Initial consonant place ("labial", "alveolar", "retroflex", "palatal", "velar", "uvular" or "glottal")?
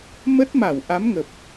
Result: labial